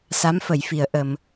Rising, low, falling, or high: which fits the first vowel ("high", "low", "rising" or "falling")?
rising